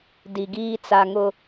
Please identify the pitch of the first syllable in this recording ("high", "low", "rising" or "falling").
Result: low